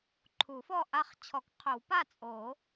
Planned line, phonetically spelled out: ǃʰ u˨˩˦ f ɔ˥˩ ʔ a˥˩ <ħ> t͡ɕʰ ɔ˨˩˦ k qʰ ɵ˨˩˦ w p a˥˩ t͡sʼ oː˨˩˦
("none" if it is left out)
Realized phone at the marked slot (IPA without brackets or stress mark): χ